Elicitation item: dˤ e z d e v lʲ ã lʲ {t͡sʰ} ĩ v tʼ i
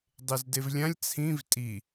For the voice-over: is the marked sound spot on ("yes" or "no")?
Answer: yes